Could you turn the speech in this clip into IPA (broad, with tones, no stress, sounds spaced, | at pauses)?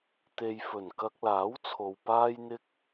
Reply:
t̪ e˨ j f ɵ˨˩ n k ɐ˧ k̚ l aː˨˥ w t͡sʰ o˨ w p aː˥ j n̪ ɪ˥ k̚